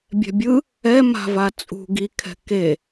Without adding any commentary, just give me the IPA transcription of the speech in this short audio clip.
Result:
bʲ ɛ̤ bʲ ɯ | ɛ m a̤ v a t͡sʼ ṳ ɡ i kʰ ɛ̤ k e

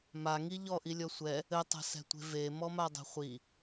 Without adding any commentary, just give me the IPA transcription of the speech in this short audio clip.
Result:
m a ŋ i ʎ ɔ ʔ i lʲ ɔ sʷ ɛ | ɘ tˤ ɛ̤ s ɛ̤ tʷ e̤ v e m ɔ m a dˤ e̤ χʷ i

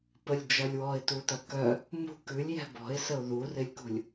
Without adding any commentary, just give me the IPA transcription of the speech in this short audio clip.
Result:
p ə lʲ d͡ʒ ɐ lʲ w ɔ ɪ̯ t u t ɐ k œ | m ṳ k ʉ lʲ j ɛ̤ b ɔ̤ ɪ̯ s ə ʊ̯ ð u r ɪ lʲ k ṳ lʲ

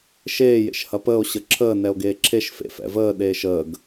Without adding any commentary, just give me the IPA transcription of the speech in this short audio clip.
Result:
ʃ eː j ḛ ʃ h ɐ p əː o̯ ɕ ə ǁʰ əː n ɛ o̯ ɡ eː ǁʰ e ʃ f ḛ f ɛ̰ v əː ɗ eː ʃ əː ɡ

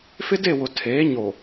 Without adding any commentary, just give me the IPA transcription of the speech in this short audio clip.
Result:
f ɪ˦ d e˦˨ w ʊ˨ tʰ eː˨˦ ɲ o˨

